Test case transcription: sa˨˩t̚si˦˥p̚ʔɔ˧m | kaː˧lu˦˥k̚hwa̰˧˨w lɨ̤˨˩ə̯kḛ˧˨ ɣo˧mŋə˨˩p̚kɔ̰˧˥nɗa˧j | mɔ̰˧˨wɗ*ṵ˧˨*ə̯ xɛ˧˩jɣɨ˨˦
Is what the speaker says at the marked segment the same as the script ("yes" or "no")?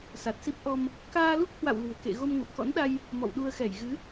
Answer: no